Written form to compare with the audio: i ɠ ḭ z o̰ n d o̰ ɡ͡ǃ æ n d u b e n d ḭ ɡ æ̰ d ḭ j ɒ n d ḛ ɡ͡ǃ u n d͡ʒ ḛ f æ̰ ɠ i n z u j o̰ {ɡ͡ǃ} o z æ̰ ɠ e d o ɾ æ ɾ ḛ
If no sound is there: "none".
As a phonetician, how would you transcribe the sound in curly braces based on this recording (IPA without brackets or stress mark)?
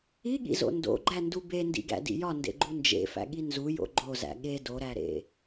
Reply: ɡ͡ǃ